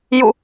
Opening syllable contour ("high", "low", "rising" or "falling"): falling